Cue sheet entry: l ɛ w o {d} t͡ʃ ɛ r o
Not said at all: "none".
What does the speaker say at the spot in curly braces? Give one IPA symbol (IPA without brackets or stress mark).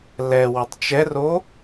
tˤ